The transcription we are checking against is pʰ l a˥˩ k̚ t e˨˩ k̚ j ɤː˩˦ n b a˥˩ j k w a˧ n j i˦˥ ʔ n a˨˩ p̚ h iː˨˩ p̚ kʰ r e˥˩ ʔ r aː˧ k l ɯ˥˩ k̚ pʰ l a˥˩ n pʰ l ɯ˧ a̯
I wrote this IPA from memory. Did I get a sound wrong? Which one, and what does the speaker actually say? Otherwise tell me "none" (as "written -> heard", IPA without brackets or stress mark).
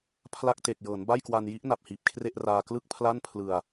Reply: none